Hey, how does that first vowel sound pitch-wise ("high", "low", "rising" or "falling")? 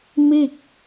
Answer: falling